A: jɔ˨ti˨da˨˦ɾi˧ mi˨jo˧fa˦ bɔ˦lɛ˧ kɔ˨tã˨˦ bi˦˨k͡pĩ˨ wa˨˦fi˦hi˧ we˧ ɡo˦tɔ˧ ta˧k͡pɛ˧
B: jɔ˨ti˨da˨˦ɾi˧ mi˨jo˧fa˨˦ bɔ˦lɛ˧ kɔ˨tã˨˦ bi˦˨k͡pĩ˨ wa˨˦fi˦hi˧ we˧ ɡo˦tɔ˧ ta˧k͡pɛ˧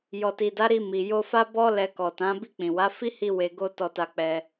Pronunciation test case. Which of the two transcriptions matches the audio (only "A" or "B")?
A